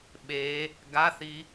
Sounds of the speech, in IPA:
ɓe | ɡaθi

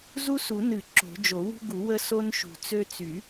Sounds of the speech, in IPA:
zu˦su˨˩˦nɨ˨˩˦ ǁo̤˨˩˦d͡ʒo˨˩˦wṳ˦ɡu˨˩˦ wə˦ so˦nʃṳ˨˩˦t͡sø˦ t͡sy˨˩˦

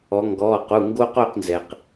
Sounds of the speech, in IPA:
ɔ˩˧ŋɡɔː˩˧˩qu˩˧˩ ŋɡo˦qo˥˨qnzɛ˩q

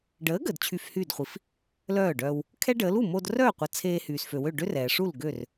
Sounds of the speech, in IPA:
ɖəː˩˥ ɡəː˩d t͡ɕʰy˧fhyː˥˩dχʷi˩f | lœː˥˩ɖœː˧w | kʰɛ˥ɖəː˩˥l u˥˩mo˧drœː˥˩qʷə˩˥ t͡sʰeː˧hyː˩sfø˩wø˥˩ ɖø˥rɛː˩ʂu˥˩l ɡø˥˩r

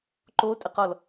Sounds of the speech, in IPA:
ǃotʼɘqɔl

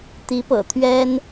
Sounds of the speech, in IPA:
t̪i˧˥pɤ̰˨˩ t̪ʰɥɛ˥n

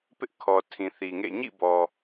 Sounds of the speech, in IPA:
pɪ˦ʔkʰɔ˨tʰĩ˨ θi˨ŋḛ˦˨ ɲḭ˦˨bɔ˨

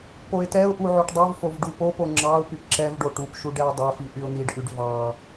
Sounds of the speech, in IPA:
poɪ̯tɛʊ̯ʔu ʕoʈdˤuvfov ɖupopo ŋ͡ǁɑʊ̯ pypǁɛvɖo ʈupʃu ɖɛɪ̯dˤɛfi ʔyʊ̯n̪iɖʔyɖ vɑ

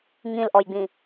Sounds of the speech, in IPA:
ŋĩlʔɔjɡ͡bĩ

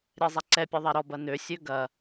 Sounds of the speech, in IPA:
ɾʲɛzˤaǀɛpʲɛ ðˤɛɾɔbɐ nøsʲø ɡɐ

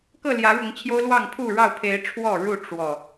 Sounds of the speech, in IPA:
kɤ˥˨ljä˨˦ɻʊ˨˦ŋ t͡ɕʰjo˦ʊ̯lwɑ˥˨ŋpʰu˥˨ɻɑ˥˨ʊ̯ pʰe˨˦ɪ̯ ʈ͡ʂʰwɔ˥˨ɻu˥˨ ʈ͡ʂwɔ˨˩

